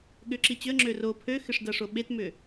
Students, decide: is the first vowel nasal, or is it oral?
oral